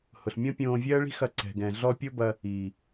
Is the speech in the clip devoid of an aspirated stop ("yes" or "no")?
yes